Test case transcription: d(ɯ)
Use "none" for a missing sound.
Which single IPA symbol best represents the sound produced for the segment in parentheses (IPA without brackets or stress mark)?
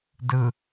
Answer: ɯ